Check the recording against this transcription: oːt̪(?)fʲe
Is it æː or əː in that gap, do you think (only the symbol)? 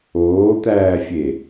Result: æː